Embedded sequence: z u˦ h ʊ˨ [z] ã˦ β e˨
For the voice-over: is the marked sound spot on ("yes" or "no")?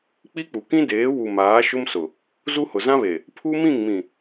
yes